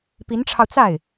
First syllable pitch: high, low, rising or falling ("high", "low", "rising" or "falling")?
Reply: rising